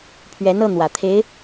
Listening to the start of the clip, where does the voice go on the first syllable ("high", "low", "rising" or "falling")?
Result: rising